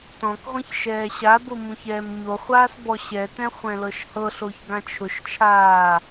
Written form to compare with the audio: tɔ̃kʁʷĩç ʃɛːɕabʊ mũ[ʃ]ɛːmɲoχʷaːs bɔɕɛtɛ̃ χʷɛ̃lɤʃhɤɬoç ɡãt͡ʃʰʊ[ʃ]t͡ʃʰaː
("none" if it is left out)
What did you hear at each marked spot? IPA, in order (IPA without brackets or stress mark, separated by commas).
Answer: ç, ʃ